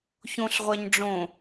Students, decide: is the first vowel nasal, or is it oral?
nasal